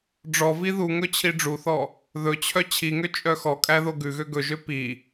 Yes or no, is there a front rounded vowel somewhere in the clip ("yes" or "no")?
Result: yes